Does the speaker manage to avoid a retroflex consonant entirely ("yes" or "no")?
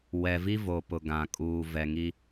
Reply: yes